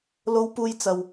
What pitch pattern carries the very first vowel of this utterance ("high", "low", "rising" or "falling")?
high